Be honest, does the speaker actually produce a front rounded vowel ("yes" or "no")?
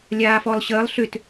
yes